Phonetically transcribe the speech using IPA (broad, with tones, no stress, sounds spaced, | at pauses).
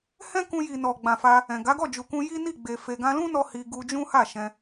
h ɛ̃˦ k ũ˧ j i˨ n ɔ˨ ɡ͡b ã˨ f a˧ | ɛ̃˨ ɡ a˨˦ ɡ ɔ˦˨ d͡ʒ u˨ k ũ˧ j i˦ n i˦˨ ɡ͡b e˨ f e˨ ɡ ã˧ l ũ˦ n ɔ˧ h i˧ ɡ u˧ d͡ʒ ũ˦ h a˦˨ ʃ ɛ̃˧